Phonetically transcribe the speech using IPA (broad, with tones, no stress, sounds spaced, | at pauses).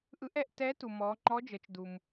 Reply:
ʔ ɯ˧˥ ʔ ɛ˧ ʔ t ɛ˧˥ t u˩ m ɔ˩˧ ŋ͡ǃ ɔ˧˥ d͡ʒ ɤ˩˧ t͡ʃ d u˩ m